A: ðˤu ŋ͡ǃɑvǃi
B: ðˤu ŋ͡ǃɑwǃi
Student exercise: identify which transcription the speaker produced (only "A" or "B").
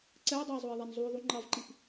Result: A